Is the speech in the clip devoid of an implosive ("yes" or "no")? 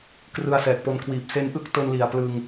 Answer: yes